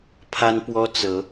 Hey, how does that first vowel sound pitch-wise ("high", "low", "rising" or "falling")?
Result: high